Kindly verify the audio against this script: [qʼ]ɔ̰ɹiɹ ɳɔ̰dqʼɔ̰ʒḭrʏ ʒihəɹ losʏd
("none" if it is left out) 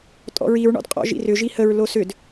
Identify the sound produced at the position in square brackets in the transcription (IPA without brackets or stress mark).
tʼ